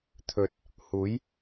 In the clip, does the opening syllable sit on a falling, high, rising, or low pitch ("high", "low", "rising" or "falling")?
low